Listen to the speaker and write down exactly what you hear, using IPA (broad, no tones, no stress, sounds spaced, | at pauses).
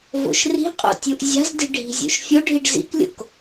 v o̰ ʃ r i̤ qʼ o̰ tʲ u ʔ zʲ a̤ z d i̤ ɖʱ i̤ zʲ o̰ ʃ fʲ o ɖʱ i ɖ z ḭ k lʲ o̰ k